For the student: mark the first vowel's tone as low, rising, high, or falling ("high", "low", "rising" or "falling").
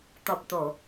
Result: low